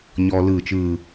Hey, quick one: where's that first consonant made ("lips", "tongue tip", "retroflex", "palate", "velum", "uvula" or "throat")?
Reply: palate